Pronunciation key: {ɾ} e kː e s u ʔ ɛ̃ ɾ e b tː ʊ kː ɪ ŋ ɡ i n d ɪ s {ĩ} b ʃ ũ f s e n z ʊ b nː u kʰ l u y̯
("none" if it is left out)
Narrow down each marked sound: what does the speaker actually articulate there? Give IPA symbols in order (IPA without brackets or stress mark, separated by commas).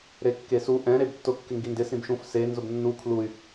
ɾ, ĩ